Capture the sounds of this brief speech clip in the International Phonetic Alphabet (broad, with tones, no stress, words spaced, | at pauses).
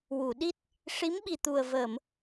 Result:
wu˨˩˨ɗi˦˥t̚ | ʂi˧˥mɓi˨˩t̪u˨˩ə̯ vəː˨˩˨m